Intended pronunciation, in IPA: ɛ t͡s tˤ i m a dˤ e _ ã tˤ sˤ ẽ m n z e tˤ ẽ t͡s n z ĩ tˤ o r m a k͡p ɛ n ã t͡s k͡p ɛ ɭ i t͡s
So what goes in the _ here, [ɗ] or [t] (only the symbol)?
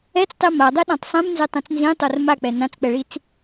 ɗ